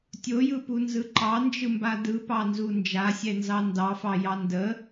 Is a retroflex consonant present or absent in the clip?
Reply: absent